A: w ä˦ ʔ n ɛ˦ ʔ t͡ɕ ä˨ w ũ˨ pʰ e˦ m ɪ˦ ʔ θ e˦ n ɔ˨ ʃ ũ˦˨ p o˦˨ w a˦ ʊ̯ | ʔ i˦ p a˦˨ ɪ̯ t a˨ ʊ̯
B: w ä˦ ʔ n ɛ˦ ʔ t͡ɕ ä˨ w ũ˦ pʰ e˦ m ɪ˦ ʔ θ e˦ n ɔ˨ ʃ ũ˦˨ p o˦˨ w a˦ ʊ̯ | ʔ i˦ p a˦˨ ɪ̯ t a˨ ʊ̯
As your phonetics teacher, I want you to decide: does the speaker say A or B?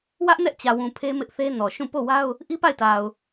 A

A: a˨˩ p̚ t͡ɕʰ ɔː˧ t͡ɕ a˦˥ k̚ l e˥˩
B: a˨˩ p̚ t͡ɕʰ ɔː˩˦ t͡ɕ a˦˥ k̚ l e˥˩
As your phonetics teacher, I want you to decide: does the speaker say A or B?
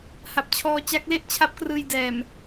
A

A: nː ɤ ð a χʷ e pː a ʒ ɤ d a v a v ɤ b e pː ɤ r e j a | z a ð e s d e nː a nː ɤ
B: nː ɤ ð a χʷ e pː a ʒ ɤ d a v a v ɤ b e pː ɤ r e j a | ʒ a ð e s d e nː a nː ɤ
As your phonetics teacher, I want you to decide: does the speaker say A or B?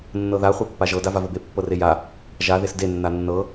B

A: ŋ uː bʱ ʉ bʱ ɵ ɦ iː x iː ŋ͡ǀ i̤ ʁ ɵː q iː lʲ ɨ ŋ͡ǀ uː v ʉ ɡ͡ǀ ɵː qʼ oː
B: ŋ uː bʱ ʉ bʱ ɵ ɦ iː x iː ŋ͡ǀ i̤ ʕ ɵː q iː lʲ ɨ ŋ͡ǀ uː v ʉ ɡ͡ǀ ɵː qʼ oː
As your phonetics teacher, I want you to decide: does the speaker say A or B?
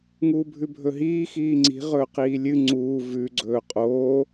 A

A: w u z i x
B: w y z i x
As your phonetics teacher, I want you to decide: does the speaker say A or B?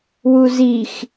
A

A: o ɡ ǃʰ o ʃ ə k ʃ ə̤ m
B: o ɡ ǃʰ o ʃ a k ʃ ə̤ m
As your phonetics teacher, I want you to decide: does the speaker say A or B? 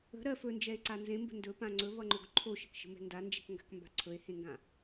A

